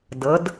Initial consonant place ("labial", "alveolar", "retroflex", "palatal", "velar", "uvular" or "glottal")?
alveolar